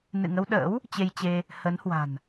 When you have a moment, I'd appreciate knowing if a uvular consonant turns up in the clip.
no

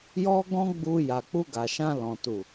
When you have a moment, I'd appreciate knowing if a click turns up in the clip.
no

